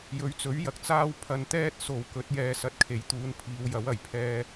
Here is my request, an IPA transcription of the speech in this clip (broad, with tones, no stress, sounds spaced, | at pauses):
j ɵ˨˥ ɥ t͡s ɵ˨˥ ɥ j ɐ˨ k̚ t͡s aː˥ w pʰ ɐ˧ n t̪ ɛː˥ t̚ s o˨ w k ɵ˨˥ t̚ j ɛː˧ s ɐ˧ t̚ kʰ e˨˥ j t̪ uː˨˧ n pʰ iː˨˧ w j ɐ˨˥ w ɐ˨˩ j pʰ ɛː˧